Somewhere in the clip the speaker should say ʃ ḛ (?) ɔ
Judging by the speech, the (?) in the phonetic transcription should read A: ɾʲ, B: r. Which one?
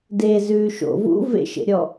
A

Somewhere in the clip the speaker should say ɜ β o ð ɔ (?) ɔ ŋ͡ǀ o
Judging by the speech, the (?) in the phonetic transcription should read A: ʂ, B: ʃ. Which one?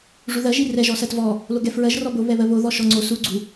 B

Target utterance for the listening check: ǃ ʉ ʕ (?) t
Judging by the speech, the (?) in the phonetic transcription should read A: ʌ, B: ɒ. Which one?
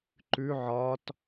B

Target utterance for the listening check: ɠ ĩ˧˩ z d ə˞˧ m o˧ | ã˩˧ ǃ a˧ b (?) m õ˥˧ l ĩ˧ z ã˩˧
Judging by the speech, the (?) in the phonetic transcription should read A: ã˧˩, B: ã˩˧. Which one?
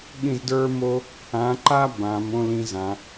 B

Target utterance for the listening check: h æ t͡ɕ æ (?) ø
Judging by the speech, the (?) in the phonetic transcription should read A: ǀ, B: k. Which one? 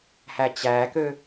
B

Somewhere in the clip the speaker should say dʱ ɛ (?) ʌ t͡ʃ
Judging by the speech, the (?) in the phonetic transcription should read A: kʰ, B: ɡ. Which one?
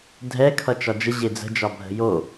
A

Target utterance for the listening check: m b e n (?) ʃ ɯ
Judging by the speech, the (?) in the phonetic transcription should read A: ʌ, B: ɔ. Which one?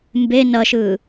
A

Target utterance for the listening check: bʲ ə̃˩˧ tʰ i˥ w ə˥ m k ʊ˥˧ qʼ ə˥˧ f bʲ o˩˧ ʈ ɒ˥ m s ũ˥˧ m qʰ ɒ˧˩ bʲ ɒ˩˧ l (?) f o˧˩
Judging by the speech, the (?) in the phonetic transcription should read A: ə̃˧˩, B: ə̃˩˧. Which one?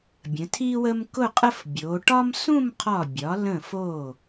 A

